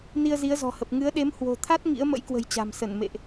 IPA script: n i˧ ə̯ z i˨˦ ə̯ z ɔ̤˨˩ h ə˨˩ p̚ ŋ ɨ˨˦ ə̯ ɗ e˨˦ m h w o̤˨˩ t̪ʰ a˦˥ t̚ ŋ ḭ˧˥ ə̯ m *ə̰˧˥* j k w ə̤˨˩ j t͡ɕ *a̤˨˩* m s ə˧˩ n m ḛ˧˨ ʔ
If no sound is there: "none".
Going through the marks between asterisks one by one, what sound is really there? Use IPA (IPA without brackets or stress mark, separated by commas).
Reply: ə̰˧˥, a̤˨˩